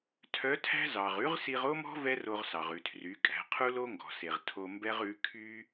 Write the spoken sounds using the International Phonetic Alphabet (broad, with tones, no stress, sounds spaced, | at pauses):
tʰ œ˧˥ tʰ æ̤˥ z ɑ˩ ʁ ʉ˧˥ ʁ s i˧ ʁ o˥ m ɔ̤˥ v ɛ˥ r o˧ ʁ s ɑ˩ ʁ ʉ˩ tʰ r y˩˧ kʼ æ̤˩˧ qʰ u˥ l o˥ ŋ ɡ ɔ̤˩ s e˩ ʁ tʰ o˧ m b ɛ˥ ʁ ʉ˧˥ kʰ y˥